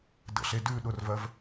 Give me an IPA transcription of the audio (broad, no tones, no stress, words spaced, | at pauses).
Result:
də̰ɬe dʉ ɗʊrvɜv